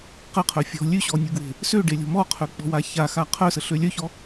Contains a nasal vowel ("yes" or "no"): no